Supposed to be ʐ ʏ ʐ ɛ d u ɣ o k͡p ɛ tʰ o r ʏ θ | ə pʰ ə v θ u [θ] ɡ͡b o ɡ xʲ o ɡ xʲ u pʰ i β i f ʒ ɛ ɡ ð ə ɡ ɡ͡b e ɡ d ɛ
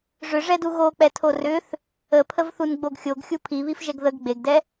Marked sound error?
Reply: yes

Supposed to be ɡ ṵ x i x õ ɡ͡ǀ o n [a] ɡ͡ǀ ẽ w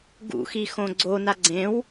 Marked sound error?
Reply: no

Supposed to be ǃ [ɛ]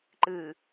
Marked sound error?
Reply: yes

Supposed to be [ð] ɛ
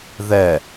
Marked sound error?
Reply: no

